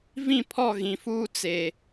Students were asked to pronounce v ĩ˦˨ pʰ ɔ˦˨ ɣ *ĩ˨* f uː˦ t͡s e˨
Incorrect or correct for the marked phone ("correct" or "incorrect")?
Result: correct